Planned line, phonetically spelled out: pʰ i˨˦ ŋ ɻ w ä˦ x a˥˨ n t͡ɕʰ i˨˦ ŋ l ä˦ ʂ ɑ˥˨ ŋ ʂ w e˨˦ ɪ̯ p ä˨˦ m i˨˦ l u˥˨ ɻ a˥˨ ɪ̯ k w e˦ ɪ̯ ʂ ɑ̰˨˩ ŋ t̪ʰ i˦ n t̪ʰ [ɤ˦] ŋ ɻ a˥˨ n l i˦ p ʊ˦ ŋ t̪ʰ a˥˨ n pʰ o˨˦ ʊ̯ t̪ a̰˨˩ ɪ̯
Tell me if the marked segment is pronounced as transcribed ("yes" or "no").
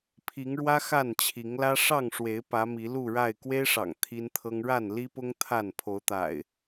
yes